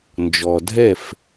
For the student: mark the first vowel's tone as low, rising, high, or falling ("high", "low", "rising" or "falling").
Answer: low